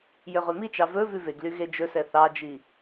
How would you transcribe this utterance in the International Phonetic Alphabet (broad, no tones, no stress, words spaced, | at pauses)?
jøʁʉmit͡ʃɑ vɵ vʉveɡly ɣed͡ʒɵsɛ θɑd͡ʒi